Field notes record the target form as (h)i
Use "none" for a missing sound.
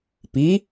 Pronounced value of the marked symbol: p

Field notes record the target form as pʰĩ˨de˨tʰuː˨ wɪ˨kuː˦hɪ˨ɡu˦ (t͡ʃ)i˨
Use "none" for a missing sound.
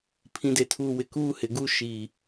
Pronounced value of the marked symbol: ʃ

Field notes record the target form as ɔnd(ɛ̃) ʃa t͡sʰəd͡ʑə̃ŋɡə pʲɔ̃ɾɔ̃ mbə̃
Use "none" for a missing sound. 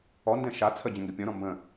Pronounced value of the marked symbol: ɛ̃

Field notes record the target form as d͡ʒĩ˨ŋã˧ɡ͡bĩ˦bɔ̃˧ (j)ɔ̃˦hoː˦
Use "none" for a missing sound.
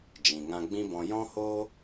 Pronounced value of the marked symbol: j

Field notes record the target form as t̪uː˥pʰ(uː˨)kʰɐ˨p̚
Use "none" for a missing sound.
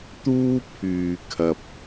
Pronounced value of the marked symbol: yː˨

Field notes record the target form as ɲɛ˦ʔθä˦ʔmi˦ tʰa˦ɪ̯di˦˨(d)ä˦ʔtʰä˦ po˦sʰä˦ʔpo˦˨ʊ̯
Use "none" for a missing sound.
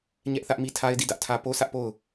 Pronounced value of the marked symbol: d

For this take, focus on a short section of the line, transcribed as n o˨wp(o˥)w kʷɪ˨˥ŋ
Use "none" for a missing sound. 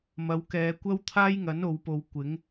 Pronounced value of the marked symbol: o˨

